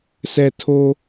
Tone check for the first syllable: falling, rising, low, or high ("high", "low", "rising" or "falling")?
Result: low